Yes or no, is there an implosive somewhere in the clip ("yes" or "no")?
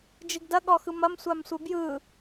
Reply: yes